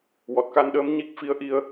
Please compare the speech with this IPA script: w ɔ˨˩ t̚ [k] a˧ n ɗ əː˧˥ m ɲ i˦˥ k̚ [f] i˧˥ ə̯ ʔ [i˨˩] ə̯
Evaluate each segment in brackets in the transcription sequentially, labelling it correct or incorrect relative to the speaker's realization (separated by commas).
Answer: correct, correct, incorrect